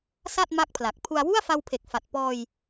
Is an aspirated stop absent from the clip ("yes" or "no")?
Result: no